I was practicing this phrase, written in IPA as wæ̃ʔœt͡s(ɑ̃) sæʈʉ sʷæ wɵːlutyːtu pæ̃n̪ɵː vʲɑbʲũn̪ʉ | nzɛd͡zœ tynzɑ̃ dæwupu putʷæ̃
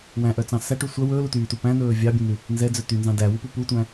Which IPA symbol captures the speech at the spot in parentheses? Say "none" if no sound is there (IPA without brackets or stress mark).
ɑ̃